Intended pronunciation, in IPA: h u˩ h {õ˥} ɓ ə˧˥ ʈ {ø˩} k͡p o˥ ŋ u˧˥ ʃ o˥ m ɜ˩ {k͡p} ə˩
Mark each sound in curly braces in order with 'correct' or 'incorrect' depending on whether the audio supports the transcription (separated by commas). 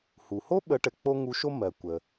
incorrect, incorrect, incorrect